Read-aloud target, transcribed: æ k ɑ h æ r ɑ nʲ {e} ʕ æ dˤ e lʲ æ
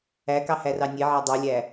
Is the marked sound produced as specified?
yes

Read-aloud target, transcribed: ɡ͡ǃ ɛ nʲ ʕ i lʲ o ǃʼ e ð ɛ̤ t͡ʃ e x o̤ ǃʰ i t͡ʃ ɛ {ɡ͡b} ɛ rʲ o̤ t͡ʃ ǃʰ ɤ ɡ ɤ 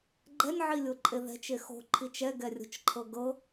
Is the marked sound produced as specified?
no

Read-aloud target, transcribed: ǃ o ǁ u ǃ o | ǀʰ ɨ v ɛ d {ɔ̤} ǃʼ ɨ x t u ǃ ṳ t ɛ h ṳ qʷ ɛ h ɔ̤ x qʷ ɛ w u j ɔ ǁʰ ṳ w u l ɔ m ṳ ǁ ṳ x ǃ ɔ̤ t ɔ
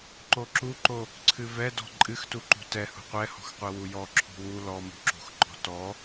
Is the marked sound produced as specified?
yes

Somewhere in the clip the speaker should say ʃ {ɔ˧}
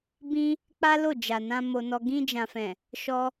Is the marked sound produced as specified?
yes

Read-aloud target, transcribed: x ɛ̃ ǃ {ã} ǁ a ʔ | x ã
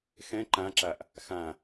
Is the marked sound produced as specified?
yes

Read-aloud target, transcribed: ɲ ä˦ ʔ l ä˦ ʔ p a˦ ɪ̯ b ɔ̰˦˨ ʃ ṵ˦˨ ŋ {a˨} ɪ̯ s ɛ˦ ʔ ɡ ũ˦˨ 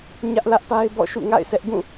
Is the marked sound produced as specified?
no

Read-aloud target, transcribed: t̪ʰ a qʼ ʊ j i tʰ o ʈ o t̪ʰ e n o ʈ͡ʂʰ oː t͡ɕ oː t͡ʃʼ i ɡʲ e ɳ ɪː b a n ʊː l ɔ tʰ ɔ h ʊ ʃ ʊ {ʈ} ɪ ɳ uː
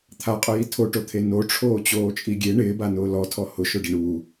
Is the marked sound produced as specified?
no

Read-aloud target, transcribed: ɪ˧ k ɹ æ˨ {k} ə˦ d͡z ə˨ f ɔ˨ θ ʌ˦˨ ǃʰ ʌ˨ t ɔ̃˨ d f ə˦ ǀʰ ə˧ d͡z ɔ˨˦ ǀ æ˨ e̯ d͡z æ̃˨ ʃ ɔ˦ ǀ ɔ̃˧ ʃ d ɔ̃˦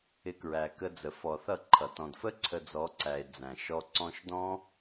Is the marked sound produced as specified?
yes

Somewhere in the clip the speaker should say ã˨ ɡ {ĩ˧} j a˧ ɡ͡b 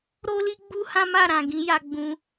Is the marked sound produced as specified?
no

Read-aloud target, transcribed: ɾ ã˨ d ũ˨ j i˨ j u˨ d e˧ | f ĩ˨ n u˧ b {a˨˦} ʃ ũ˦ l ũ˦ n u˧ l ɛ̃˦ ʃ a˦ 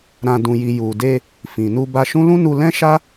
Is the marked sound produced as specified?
no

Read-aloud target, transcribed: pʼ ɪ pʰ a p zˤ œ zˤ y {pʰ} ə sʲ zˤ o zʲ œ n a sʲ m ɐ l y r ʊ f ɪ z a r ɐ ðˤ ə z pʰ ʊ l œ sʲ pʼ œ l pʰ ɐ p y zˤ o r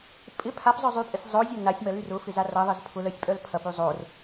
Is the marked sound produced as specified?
no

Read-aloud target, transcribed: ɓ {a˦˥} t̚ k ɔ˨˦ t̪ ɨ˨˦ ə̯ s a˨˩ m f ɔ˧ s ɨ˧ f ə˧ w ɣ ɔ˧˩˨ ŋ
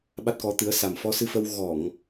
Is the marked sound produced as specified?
yes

